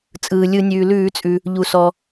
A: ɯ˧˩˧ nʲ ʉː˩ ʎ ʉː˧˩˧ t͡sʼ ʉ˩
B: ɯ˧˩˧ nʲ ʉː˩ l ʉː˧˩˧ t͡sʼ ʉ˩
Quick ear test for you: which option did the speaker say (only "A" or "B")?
B